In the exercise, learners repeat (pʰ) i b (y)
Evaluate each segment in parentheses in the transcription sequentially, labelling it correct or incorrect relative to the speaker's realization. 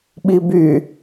incorrect, correct

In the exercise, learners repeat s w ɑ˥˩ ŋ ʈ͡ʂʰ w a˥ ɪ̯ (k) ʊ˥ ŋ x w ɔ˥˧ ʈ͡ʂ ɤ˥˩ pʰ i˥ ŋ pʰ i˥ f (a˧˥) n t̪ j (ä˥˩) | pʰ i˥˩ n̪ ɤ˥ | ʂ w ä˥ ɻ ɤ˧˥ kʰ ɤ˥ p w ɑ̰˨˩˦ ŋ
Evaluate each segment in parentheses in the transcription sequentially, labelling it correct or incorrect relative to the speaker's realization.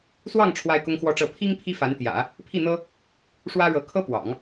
correct, correct, incorrect

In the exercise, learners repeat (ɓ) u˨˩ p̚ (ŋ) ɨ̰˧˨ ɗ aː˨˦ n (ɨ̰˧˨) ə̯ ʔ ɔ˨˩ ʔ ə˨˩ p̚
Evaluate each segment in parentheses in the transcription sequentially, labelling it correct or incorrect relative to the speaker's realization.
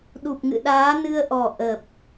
incorrect, correct, incorrect

